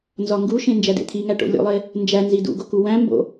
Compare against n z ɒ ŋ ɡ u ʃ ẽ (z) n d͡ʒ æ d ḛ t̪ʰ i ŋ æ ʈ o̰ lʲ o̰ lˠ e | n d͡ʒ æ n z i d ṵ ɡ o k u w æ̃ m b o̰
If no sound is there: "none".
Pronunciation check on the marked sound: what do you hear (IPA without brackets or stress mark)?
none